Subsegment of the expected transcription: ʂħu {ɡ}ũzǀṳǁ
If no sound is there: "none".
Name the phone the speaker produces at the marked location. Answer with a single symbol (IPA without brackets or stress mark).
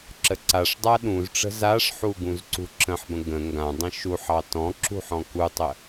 ɡ